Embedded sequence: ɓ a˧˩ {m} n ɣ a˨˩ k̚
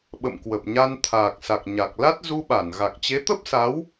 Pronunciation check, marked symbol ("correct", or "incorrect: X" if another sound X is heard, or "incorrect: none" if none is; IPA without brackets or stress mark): incorrect: none